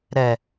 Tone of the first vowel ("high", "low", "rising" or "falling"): low